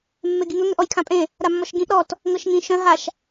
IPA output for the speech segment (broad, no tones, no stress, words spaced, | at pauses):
mːeɡiŋɵ ŋʏʔɔjkʰãpʼẽ | ɾamːɔʃɡĩʔ ɾɔt | ŋɤʃŋĩ ʃœ̃ ɦaʃ